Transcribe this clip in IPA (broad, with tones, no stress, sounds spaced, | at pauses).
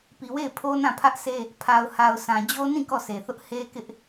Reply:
p i˨ w e˦˨ ɪ̯ pʰ o˦ n ã˦˨ pʰ ä˦ ʔ sʰ e˦ | pʰ a˨ ʊ̯ h a˨ ʊ̯ sʰ ã˨ d͡ʑ o˦ n ĩ˦˨ k ɔ˦˨ sʰ e˨ θ ʊ˦ ʔ h e˦ k ɪ˦ ʔ